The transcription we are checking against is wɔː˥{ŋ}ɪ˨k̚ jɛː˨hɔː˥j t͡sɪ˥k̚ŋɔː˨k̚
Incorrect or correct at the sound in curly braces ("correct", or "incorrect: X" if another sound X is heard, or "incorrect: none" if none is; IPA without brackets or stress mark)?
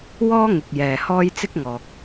correct